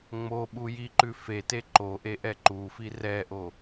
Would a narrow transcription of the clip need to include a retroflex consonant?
no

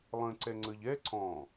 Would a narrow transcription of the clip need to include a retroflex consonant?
no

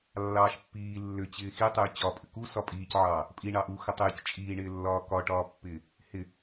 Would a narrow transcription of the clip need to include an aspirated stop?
no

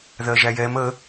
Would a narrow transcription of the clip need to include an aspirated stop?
no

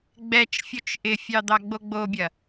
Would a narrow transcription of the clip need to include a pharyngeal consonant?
no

